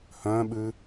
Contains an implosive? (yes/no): yes